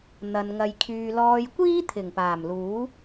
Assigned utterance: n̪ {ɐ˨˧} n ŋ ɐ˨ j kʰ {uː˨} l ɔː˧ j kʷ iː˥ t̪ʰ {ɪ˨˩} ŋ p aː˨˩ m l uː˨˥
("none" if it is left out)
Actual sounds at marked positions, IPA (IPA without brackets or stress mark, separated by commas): ɐ˨, yː˨, ɪ˨˩